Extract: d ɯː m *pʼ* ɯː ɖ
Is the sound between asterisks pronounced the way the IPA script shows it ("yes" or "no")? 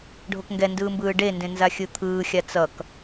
no